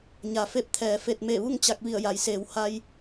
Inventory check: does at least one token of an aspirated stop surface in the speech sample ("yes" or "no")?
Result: yes